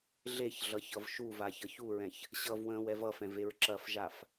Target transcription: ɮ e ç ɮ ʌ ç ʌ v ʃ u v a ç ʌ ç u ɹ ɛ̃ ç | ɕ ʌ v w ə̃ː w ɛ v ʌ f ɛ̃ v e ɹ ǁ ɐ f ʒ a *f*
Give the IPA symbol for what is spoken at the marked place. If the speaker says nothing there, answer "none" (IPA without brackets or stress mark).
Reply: f